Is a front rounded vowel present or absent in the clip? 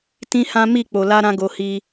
absent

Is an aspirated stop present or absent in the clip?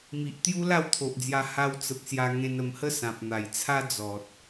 present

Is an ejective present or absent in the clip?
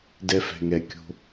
absent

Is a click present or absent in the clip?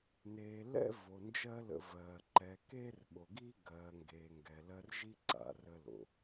present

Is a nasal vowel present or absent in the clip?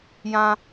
present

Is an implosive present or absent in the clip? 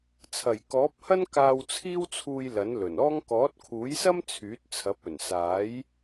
absent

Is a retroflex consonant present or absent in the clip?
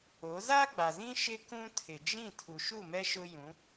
absent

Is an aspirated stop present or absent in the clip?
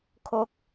present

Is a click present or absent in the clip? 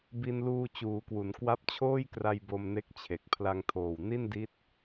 absent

